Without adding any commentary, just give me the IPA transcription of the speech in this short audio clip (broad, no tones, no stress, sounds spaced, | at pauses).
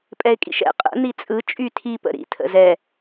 pʼ ɛ ɪ̯ kʼ ḭ ʃ ɛ̰ qʼ ə̰ n̪ i t͡sʼ ɯ t͡ʃʼ y tʰ i p ə̰ ɾ ḭ tʰ ə̰ z ɛ